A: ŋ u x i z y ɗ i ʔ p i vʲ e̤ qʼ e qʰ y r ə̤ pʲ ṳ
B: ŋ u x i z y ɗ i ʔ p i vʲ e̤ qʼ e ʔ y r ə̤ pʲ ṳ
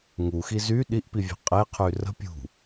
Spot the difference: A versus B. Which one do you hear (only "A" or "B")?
A